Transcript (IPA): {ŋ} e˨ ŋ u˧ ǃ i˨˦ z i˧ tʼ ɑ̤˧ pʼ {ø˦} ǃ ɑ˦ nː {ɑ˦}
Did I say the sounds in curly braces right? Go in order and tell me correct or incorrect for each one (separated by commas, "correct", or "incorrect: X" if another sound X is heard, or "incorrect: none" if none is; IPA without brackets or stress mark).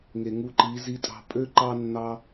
correct, correct, correct